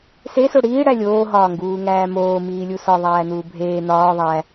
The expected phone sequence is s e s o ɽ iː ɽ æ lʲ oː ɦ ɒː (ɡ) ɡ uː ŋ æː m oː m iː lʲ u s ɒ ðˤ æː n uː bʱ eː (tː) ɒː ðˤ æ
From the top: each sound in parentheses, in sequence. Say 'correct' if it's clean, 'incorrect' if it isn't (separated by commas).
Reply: incorrect, incorrect